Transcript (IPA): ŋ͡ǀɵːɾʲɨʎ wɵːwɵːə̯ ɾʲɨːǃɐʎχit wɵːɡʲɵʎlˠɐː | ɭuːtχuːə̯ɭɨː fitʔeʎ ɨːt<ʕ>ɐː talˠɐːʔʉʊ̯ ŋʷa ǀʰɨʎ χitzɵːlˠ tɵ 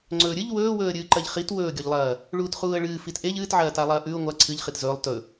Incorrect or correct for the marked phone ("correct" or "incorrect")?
correct